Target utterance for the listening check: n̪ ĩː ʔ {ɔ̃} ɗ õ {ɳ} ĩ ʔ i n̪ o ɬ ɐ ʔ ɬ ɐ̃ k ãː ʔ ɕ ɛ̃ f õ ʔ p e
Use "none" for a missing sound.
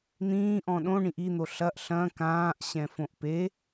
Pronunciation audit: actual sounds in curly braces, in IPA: ɔ̃, ɳ

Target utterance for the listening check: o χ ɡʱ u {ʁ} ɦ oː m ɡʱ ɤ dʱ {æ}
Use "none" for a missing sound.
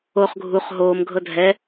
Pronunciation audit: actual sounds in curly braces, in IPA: χ, ɛ

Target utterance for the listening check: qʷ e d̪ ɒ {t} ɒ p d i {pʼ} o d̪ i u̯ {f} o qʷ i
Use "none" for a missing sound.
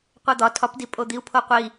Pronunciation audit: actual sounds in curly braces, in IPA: tʰ, pʼ, pʰ

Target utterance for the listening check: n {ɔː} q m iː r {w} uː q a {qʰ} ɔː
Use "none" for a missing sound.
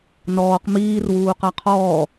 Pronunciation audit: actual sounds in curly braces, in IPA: ɔː, w, qʰ

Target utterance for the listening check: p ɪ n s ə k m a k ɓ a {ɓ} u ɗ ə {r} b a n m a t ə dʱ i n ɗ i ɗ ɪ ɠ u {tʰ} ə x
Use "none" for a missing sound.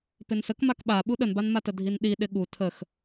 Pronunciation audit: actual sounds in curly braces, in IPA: ɓ, n, tʰ

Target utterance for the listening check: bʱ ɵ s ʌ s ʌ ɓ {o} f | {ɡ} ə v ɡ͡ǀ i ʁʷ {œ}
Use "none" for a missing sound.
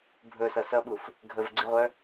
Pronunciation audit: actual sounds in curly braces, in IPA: u, ɡʱ, œ

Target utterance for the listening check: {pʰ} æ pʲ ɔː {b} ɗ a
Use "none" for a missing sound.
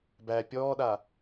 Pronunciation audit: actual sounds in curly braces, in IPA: b, none

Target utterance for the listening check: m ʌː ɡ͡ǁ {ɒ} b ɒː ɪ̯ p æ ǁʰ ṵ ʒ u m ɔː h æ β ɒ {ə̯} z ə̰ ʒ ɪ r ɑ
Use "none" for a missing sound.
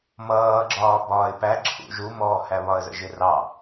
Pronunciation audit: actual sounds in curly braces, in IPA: ɒː, ə̯

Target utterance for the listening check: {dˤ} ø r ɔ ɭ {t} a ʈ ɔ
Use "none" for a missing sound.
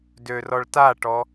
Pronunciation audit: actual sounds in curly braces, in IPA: d, t

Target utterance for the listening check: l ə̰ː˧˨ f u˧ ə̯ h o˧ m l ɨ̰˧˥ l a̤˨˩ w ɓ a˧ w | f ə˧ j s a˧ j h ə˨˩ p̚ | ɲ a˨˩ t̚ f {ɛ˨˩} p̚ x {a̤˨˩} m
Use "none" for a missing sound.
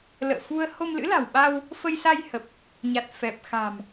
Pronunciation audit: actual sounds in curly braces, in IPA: ɛ˨˩, a̤˨˩

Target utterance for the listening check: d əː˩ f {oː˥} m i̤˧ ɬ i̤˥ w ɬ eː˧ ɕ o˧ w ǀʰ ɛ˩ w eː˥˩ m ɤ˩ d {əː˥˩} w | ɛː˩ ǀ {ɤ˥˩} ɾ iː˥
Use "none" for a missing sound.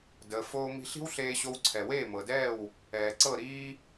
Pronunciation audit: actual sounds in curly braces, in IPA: oː˧, ɛː˥˩, ɤ˥˩

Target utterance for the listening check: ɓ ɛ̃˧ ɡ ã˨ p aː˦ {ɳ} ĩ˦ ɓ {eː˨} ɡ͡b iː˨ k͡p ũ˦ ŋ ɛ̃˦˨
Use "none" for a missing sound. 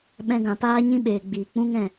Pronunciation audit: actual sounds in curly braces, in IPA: ɲ, eː˨

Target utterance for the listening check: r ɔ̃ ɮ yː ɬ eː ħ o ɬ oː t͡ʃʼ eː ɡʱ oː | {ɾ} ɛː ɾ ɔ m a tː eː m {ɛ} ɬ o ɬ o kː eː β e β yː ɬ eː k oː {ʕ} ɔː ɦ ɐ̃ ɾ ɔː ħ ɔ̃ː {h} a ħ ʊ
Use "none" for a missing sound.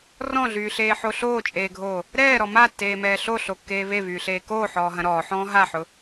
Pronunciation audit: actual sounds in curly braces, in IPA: ɾ, ɛː, ħ, ɦ

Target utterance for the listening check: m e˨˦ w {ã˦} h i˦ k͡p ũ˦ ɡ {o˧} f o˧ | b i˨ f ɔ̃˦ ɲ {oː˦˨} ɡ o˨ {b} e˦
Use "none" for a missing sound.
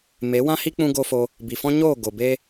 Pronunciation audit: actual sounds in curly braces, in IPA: ã˦, o˦, oː˦˨, b

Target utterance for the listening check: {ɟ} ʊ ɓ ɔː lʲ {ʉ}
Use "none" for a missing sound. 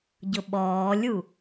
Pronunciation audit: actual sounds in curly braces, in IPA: ɟ, u

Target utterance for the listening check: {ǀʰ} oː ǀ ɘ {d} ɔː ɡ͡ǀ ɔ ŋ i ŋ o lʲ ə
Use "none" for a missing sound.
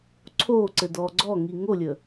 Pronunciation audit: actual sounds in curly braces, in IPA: ǀʰ, d

